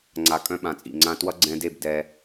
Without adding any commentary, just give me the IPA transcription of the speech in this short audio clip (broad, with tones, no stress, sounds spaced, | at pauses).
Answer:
ŋ͡ǀ a˧ kʼ œ̃˦ ɓ ã˨ t͡sʼ ḭ˨ ŋ͡ǀ ã˧ t w ʌ˦ ɡ͡ǀ ɛ̃˧ d e˦˨ b d ɛ˧